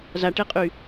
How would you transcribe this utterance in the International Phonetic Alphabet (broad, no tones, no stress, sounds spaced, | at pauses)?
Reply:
z a ʈ e qʼ y